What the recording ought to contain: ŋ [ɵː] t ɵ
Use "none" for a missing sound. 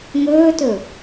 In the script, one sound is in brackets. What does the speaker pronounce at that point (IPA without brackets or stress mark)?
ɵː